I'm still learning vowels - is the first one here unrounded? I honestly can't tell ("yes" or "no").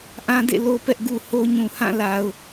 yes